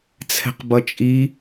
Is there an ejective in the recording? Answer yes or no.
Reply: yes